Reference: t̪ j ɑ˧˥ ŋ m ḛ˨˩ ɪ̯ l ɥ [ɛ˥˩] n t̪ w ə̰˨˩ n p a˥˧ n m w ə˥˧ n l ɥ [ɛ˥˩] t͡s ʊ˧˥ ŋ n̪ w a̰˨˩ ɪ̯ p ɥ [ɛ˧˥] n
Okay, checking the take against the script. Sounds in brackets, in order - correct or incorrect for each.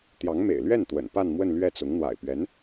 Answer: correct, correct, correct

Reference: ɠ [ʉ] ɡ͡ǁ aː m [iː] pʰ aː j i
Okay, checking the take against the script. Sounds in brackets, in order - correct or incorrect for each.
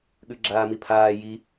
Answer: correct, incorrect

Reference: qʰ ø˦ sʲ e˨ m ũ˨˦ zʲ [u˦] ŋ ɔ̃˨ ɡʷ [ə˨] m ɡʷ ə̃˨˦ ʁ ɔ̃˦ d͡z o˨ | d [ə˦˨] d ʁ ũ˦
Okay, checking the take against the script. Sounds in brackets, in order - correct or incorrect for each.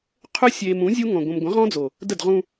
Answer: correct, incorrect, correct

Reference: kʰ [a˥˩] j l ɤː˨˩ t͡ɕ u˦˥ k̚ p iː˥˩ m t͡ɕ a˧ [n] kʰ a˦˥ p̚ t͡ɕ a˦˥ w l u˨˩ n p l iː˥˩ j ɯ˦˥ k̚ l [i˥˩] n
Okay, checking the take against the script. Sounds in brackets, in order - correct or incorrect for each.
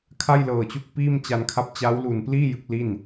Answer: correct, correct, correct

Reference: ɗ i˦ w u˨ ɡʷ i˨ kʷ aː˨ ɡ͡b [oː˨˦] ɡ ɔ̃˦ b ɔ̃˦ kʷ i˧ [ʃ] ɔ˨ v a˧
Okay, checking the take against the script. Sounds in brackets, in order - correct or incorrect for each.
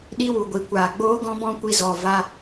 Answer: incorrect, incorrect

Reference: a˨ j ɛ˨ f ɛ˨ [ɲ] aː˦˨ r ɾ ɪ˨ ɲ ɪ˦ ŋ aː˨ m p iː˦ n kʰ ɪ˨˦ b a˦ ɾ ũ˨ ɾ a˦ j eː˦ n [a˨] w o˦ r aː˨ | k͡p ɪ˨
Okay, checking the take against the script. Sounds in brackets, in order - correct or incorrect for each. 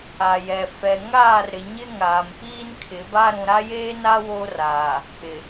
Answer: incorrect, incorrect

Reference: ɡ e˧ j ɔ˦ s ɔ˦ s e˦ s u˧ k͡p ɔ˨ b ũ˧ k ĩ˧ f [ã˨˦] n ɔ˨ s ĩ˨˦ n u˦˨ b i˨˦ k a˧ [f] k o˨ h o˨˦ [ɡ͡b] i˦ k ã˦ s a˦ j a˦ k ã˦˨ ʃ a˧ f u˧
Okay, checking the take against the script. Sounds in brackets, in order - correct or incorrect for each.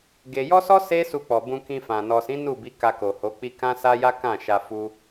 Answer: incorrect, incorrect, incorrect

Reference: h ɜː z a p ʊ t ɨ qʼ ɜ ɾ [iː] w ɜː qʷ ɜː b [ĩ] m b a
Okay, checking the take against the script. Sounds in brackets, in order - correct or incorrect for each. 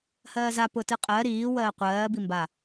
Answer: correct, incorrect

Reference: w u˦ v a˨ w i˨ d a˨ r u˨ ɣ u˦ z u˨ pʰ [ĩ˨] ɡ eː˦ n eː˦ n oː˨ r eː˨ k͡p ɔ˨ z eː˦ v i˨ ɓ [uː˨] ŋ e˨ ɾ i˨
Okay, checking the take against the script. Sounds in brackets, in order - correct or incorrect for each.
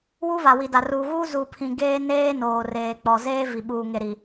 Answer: correct, correct

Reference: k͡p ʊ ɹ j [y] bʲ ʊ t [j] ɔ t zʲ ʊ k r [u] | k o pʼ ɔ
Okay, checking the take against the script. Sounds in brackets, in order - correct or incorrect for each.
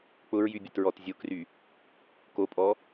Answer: correct, incorrect, incorrect

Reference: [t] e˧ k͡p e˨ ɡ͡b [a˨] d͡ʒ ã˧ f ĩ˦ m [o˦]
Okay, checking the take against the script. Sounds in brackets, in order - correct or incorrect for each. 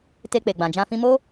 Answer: correct, incorrect, correct

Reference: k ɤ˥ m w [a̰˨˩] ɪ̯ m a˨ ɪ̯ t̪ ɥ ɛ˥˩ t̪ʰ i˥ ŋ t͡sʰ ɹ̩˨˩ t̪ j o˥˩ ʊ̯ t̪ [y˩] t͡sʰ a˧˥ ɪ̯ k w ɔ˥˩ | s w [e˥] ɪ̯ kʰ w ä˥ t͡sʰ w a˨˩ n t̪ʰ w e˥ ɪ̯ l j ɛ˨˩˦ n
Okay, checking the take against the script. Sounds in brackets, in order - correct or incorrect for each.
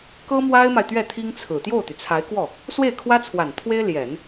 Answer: incorrect, correct, incorrect

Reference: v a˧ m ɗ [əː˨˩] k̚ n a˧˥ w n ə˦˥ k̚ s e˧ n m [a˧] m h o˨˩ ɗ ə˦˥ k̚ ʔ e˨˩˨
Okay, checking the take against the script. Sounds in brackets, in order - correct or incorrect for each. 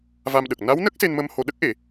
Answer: incorrect, incorrect

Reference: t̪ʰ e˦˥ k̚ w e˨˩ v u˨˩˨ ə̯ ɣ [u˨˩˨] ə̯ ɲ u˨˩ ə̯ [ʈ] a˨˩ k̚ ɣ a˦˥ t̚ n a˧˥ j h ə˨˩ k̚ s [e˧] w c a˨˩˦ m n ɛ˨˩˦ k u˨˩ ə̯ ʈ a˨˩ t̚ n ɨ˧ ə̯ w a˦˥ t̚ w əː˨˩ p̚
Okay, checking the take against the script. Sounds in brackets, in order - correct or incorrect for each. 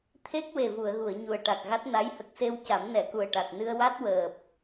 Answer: correct, correct, correct

